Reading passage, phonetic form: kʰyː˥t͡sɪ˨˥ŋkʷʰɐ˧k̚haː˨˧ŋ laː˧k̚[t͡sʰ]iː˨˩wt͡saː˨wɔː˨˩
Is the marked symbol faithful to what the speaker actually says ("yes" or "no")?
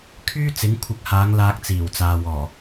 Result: no